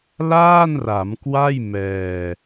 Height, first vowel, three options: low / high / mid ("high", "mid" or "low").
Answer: low